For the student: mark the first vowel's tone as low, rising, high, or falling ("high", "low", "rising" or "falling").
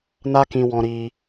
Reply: high